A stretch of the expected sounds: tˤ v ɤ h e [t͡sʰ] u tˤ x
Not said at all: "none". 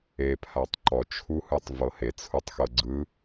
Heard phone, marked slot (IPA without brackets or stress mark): t͡sʰ